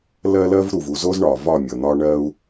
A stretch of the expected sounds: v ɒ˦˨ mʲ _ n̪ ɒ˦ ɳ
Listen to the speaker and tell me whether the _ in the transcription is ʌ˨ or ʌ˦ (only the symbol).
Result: ʌ˨